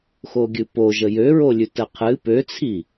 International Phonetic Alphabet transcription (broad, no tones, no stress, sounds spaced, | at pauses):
x o ɡʲ ɨ p o ʒ ə j ø ɹ o lʲ ʉ t ə qʰ ɨ p ø t͡sʰ i